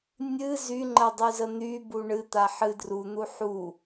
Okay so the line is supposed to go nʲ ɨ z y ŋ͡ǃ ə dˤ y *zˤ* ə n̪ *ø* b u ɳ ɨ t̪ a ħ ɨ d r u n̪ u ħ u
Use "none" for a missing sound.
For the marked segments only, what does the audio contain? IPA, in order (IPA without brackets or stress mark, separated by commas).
z, y